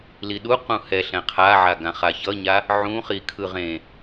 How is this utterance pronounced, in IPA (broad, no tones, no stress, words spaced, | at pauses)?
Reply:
liɗu qũhɛ ɬɛ̃qʰaʕa ɡãχaçʌɲa | ʕũ χikʰɯʁẽ